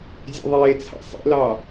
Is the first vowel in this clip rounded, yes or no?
no